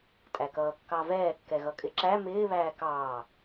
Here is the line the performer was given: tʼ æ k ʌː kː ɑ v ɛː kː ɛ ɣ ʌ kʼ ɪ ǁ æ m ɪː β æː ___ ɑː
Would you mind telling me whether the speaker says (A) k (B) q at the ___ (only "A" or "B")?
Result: A